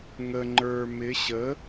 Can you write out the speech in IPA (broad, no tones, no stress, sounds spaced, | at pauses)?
ŋ ə ŋ͡ǃ ə˞ m ɪ ɕ ə